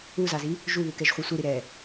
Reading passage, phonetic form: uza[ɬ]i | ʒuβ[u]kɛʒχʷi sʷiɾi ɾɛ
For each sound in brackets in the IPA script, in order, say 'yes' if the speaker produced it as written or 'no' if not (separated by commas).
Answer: no, yes